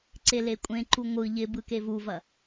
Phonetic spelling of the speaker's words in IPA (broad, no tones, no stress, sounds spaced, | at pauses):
ǀ e l e kʷʼ ẽ ǃ u ŋʷ ɯ ʎ ɪ b ɯ k e v u v ɐ